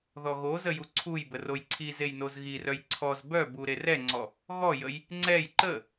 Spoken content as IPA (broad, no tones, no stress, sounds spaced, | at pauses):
ð ɔ ɣ o z ə j u ǀʰ u j b ə r o j ǀʰ i z e j n o z ɣ i r œ j ǀʰ ɔ z b œ b u ɾ e r ɛ ŋ͡ǀ ɔ | ɣ ɔ j ə j | ŋ͡ǀ ɛ j ǃ ə